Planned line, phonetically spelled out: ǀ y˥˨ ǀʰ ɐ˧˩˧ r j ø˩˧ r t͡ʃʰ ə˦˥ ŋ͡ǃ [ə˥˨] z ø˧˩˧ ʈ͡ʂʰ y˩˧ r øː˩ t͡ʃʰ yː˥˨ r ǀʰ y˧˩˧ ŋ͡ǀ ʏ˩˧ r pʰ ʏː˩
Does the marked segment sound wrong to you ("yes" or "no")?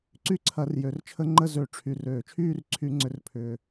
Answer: no